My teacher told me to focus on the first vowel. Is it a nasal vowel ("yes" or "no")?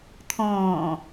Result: yes